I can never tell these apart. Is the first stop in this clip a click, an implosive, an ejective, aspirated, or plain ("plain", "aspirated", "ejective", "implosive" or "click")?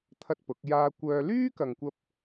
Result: aspirated